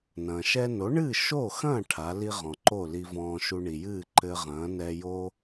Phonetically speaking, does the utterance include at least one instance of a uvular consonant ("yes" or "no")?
yes